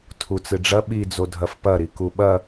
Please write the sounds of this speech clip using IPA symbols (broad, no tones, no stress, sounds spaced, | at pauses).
tʰ u t͡s ɨ ɖ͡ʐ ɐ ɓ i d͡z o dʱ ɐ f p ɐ ɾ i k u ɓ ɐ